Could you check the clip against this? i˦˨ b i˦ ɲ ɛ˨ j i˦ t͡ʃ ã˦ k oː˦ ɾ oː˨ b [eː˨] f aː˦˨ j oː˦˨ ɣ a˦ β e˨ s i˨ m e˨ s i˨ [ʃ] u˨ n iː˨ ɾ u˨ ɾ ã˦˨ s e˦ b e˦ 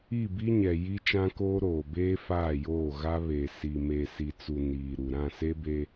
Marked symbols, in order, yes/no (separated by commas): no, no